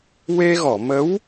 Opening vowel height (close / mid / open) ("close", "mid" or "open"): mid